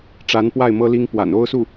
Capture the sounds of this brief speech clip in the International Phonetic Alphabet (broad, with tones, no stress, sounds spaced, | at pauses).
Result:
ʈ͡ʂ a˧˥ n p w a˥˩ ɪ̯ m ɤ˥ l i˥ ŋ p w a̰˨˩ n o˥ ʊ̯ s u˥˩